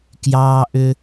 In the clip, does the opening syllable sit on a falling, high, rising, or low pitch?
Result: high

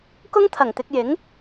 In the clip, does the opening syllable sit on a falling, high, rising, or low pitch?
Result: high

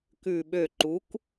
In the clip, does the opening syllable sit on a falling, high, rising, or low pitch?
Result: low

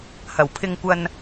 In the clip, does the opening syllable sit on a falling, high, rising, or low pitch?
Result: low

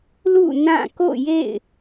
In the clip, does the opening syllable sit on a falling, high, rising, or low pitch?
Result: falling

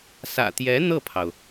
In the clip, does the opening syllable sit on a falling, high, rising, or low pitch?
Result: low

